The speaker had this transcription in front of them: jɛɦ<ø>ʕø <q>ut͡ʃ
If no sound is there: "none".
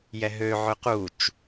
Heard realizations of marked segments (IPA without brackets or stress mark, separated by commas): ø, q